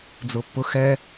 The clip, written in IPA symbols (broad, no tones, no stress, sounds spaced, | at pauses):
d͡z ʊ pː ʊ x ɛ